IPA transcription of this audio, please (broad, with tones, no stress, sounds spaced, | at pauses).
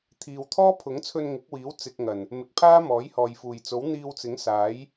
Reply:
t̪ʰ iː˨ w t̪ʰ ɔː˥ pʰ ʊ˨˥ ŋ t͡sʰ ɵ˧ n ŋ ɪ˨˥ k̚ w iː˨˥ w t͡s ɪ˨ k̚ ŋ ɐ˨˩ n | m ɪ˨ k̚ pʰ aː˥ m ɔː˨˥ j h ɔː˨ j f uː˨˩ j t͡s o˨˥ w n̪ iː˧ w t͡s ɪ˨˥ ŋ s aː˨˥ j